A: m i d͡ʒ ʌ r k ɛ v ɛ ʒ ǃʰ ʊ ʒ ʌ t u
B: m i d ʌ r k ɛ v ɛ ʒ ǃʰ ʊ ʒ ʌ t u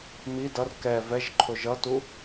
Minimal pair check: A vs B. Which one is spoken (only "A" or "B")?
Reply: B